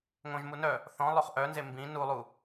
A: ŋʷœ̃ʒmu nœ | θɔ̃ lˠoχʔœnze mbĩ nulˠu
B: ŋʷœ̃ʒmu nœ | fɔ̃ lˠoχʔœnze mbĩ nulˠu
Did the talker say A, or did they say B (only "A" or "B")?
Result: A